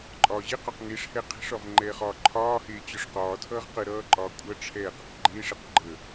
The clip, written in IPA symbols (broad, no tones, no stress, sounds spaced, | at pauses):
ǃʼ ɒː ʑ e q ɒ q ŋ e ʂ h ɛ qʰ ɛ̤ ʂ ɒ v ŋ͡ǃ ɛː χ ɒː ǃʰ ɒː h eː t͡ɕ ɒ ʂ q ɒː tʰ ʌː ʁ q ə ɾ ʌː ǃʼ ɒː kʷʼ ʌ ʈ͡ʂʰ ɛː q ʌ q ɡ͡ǃ eː ʂ e q ɡ͡ǃ ə